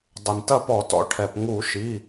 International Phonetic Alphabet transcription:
dˤɨ˩ntɐ˥˩pɔ˧˩˧tɔ̰˩˧ ʈʰɛ˩pŋu˧˩˧ ʃi˩˧˩

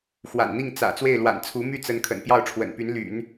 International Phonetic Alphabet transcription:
xwa̰˨˩nn̪i˥˩ŋ t͡sä̰˨˩ t͡swe˥˩ɪ̯lwa̰˨˩nt͡sʰu˧˥ my˥˩t͡sə˧˥n kʰə̰˨˩npjɑ˥˩ʊ̯ʈ͡ʂʰwə̰˨˩npy˧˥n ly̰˨˩˦n

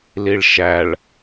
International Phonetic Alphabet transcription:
liɭʃæɭ

